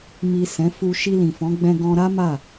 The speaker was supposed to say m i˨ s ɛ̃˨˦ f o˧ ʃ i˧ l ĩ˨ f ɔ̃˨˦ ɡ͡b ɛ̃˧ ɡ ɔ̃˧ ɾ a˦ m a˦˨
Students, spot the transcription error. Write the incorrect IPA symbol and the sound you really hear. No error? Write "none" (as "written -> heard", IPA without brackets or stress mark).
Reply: o˧ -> u˧